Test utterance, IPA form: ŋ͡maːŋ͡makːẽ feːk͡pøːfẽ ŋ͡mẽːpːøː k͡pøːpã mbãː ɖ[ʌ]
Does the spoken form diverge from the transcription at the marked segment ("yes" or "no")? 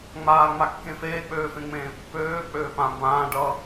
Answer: no